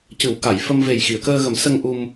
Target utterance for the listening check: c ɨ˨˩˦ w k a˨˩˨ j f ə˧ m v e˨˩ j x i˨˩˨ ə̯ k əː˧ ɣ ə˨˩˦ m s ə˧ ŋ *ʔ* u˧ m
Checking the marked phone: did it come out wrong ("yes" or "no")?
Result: no